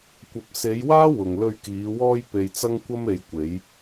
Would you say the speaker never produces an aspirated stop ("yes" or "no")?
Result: yes